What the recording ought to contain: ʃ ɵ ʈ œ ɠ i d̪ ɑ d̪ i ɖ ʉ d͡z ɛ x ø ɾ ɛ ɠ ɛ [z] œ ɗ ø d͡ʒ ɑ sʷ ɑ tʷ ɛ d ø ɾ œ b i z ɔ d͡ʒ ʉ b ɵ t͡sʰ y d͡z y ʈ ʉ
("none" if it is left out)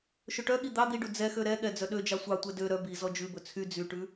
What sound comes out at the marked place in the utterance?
d͡z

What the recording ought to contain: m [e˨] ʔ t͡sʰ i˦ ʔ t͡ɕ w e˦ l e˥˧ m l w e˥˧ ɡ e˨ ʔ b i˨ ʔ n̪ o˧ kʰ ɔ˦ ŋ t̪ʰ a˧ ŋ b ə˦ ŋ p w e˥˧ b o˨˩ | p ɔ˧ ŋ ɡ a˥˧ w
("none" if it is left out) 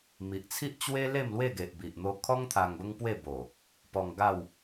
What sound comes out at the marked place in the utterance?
i˨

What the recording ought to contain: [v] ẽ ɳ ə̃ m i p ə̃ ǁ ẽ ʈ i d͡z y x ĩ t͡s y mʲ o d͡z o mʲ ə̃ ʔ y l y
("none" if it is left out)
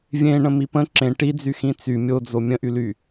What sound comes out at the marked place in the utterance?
vʲ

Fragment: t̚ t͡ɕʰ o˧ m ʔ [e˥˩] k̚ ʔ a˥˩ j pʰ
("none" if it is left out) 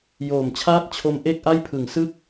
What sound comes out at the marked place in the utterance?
e˥˩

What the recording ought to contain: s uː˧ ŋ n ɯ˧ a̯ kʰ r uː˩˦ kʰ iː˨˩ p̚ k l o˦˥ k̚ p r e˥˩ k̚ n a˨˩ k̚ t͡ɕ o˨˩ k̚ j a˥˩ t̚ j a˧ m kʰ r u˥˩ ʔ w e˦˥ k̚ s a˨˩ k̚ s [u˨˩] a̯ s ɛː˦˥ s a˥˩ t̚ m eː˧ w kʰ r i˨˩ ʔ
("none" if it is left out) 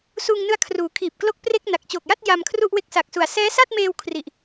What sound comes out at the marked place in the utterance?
u˨˩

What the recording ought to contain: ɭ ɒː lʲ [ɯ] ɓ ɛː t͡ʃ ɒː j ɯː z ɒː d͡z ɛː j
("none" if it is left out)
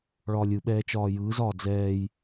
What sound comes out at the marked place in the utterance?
ɯ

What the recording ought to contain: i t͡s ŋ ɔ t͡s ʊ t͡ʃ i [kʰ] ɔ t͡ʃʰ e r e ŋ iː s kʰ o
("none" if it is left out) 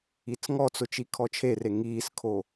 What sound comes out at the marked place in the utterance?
kʰ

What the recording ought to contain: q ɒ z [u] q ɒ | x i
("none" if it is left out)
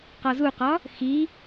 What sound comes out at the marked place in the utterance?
u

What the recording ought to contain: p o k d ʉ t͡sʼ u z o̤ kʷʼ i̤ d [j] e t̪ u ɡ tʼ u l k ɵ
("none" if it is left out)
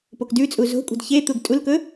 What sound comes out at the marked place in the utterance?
ç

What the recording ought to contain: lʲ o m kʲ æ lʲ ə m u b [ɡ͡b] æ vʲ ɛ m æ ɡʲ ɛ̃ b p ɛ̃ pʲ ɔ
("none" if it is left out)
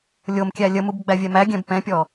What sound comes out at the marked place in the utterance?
ɡ͡b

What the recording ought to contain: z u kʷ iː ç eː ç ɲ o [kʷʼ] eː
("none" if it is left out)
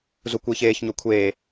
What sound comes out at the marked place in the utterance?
kʷʰ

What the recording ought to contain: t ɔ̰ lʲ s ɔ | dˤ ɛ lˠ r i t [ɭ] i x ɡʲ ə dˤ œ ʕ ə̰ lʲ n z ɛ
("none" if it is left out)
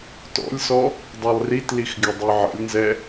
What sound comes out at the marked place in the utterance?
l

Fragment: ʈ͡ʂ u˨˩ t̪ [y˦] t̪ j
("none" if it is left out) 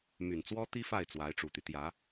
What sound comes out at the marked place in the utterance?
y˦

